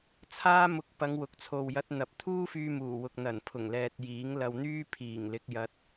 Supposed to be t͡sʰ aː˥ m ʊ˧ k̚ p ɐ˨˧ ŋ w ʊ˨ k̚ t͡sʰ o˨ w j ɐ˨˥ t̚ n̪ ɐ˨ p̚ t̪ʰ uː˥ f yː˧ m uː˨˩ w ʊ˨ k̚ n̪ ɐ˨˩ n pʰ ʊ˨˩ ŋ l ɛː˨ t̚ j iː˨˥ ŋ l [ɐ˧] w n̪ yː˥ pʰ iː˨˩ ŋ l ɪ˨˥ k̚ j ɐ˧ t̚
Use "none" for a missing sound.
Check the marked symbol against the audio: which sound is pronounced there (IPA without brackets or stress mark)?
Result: ɐ˧